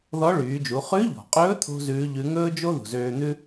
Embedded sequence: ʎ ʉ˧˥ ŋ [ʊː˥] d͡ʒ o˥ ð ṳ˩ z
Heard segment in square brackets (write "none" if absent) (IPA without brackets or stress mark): ɵː˥